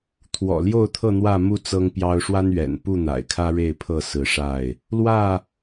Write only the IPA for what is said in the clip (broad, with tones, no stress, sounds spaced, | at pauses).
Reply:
t̪ʰ w ɔ̰˨˩ l j o˥˨ ʊ̯ t̪ʰ ɤ˥˨ n̪ w ä˥˨ m u˥˨ t͡s ɤ˦ ŋ p j ɑ˦ ʊ̯ ʂ w a˦ n ɥ ɛ̰˨˩ n p u˥˨ n̪ a̰˨˩ ɪ̯ kʰ ä˦ ɻ e˥˨ ɪ̯ pʰ ɤ˥˨ s ɹ̩˨˦ ʂ a˥˨ ɪ̯ | l w ä˥˨